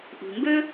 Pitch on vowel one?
low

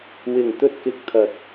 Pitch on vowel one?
low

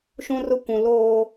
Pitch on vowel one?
high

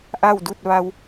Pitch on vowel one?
falling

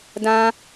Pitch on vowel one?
high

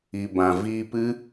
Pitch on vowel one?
low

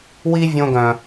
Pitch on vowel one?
high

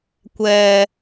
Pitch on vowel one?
low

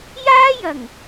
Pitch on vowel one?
high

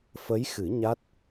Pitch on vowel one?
rising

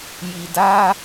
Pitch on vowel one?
low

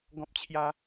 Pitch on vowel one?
high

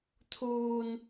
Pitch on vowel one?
high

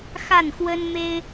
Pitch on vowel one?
falling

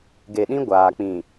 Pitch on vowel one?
low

